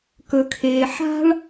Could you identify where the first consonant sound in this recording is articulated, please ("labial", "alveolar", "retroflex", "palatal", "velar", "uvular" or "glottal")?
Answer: velar